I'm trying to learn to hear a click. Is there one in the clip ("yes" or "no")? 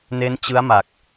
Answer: no